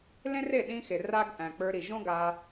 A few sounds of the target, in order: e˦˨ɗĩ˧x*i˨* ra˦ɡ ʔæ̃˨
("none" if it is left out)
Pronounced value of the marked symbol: e˨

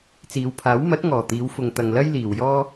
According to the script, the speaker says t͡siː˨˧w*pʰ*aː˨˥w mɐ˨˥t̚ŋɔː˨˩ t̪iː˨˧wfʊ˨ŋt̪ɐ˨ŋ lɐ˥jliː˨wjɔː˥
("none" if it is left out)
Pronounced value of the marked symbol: pʰ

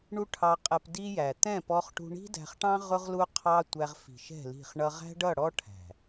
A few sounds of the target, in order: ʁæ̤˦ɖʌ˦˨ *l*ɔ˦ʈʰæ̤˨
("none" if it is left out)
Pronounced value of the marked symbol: ɽ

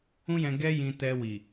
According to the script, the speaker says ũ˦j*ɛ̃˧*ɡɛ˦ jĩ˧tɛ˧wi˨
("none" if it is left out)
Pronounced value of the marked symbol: ɛ̃˧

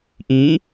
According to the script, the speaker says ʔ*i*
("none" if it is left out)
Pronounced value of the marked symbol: ĩ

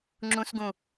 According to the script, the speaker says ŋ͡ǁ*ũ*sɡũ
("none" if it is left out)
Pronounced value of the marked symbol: ũ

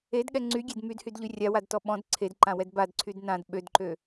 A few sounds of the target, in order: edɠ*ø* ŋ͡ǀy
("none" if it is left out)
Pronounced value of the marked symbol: ɛ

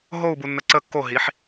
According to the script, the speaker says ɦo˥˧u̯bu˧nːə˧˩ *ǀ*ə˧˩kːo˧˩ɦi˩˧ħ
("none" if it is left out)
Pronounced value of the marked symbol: ǀ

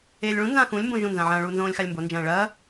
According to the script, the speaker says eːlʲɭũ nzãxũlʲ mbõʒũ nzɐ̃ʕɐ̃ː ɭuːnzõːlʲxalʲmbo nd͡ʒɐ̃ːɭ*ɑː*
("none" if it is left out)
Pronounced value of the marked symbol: ɐː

